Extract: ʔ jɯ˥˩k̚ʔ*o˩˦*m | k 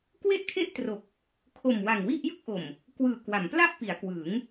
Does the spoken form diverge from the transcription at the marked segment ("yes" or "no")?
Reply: yes